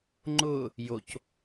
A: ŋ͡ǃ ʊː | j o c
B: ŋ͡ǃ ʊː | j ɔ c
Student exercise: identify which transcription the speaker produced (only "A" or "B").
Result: A